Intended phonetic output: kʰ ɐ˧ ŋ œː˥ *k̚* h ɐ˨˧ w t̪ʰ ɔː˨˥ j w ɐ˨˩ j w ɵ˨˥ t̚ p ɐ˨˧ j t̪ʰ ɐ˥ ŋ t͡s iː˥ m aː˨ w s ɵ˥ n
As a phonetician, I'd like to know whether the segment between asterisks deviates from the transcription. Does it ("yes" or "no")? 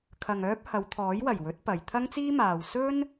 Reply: yes